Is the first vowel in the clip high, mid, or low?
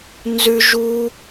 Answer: high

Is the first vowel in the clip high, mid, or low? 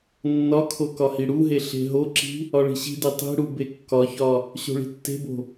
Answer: low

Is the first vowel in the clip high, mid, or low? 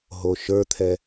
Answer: mid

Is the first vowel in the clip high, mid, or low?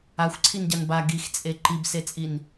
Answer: low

